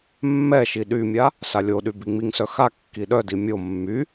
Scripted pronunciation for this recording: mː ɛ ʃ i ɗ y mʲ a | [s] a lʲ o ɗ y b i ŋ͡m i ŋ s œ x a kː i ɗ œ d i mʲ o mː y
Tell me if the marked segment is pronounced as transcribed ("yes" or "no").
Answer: yes